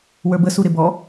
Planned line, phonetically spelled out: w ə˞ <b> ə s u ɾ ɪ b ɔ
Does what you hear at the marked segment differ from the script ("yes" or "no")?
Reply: no